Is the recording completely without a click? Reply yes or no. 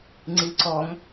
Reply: no